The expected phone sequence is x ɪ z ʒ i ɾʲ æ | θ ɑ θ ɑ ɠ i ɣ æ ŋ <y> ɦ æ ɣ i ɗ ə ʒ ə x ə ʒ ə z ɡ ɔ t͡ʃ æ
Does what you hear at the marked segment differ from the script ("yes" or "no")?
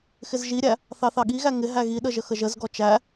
yes